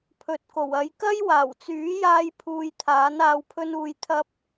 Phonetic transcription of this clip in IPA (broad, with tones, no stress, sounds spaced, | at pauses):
pʰ ɵ˨ t̚ k o˨˩ w ɐ˧ j k ɐ˥ j w aː˨˩ w t͡s yː˨˥ j aː˧ j pʰ uː˧ j t̪ʰ aː˨˥ n aː˧ w pʰ ɵ˥ n uː˧ j t̪ʰ ɐ˥ p̚